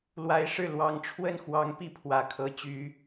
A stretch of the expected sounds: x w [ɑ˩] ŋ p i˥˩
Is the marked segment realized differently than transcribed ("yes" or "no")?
yes